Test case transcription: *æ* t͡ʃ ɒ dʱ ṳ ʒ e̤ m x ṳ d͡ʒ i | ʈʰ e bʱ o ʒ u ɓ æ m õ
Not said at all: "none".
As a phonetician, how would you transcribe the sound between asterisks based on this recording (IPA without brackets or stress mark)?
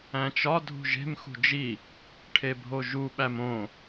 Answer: æ̃